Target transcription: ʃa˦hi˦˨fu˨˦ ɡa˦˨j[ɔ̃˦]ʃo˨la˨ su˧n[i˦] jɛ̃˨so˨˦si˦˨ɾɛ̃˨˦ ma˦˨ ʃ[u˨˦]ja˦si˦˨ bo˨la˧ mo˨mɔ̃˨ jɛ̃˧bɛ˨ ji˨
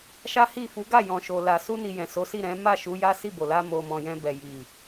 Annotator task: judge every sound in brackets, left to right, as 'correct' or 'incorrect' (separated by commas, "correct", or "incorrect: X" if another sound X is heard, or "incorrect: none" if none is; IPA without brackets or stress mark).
incorrect: ɔ̃˨, incorrect: i˨, correct